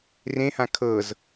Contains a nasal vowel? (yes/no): yes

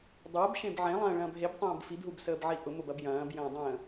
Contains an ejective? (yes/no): no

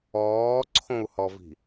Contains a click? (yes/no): yes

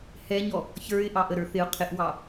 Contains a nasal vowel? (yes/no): no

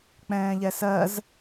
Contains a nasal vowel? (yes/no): yes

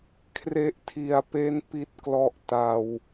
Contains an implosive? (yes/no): no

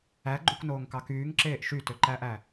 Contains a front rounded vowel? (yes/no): yes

